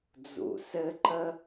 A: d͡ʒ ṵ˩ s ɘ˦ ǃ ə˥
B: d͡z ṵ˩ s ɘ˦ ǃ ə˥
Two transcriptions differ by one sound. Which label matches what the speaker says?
B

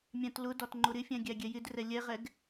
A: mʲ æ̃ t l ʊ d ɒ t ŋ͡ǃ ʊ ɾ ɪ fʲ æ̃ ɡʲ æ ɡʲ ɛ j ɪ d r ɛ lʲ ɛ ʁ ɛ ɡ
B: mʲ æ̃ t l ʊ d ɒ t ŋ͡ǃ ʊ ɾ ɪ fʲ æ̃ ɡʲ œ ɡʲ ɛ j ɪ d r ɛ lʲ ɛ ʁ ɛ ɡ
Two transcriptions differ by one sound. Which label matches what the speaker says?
A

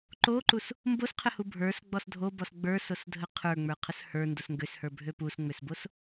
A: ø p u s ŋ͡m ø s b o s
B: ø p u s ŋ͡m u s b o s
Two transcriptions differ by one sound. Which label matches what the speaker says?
A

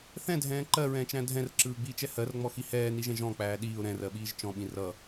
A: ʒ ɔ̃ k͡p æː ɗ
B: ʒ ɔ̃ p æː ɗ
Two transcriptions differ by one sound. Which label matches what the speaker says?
A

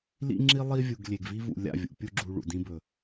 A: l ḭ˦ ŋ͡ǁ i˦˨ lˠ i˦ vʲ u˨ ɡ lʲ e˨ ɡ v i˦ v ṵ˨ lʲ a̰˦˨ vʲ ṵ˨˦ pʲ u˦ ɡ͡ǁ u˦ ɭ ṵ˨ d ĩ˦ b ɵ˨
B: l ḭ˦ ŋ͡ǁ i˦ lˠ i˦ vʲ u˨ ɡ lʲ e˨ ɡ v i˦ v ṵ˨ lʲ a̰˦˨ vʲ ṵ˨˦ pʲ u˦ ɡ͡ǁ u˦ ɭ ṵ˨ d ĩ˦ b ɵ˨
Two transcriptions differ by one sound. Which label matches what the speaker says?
B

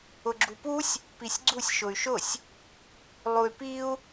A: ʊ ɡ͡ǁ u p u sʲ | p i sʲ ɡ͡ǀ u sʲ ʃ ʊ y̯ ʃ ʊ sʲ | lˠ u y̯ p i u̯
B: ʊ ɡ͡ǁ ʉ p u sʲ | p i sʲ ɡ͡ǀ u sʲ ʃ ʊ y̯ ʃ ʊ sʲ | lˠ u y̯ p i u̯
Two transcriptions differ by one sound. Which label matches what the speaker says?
A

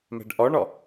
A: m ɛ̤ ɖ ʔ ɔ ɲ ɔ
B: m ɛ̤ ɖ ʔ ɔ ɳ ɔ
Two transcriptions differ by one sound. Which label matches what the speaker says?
B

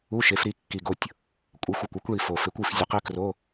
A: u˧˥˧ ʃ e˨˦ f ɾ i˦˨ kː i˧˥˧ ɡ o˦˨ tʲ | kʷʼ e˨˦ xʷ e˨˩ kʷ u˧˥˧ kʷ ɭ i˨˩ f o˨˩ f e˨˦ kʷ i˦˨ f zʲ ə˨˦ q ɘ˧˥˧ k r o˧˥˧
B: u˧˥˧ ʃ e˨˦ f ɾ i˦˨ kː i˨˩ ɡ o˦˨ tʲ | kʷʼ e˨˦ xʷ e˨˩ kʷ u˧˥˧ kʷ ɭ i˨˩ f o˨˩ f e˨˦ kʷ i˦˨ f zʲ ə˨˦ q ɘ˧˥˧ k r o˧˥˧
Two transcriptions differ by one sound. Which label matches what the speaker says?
B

